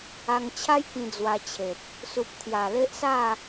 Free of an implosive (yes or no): yes